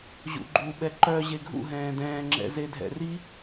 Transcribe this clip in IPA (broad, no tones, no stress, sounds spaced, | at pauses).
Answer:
ʑ ṵ ɡ͡ǃ u ɓ ɛ ǃ œ ʑ e ɡʱ ṵ ɦ ɛ̃ː d ɛ̃ː ŋ͡ǁ ɛ̰ z e dʱ ɛ̰ r i